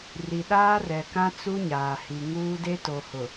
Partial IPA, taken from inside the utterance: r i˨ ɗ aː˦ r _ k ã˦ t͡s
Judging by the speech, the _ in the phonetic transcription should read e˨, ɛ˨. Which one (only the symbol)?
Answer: ɛ˨